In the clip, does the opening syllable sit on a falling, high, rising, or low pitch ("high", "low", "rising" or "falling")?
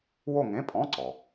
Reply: falling